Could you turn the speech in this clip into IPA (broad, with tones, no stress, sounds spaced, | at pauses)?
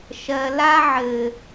ʃ ɜ˨ l a˦ ʕ ɘ˨